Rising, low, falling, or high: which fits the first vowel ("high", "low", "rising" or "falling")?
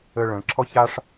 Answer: high